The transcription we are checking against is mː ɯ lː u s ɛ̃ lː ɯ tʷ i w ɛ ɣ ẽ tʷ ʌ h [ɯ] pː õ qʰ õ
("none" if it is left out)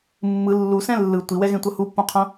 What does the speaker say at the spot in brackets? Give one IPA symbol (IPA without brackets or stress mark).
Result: u